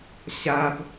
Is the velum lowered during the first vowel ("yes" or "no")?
no